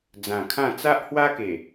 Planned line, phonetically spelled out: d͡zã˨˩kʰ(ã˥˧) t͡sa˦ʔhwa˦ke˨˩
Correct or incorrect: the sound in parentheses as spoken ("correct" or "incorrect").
correct